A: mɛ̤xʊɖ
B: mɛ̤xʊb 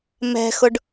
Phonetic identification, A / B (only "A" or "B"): A